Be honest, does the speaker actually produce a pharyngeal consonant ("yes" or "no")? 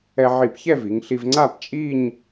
yes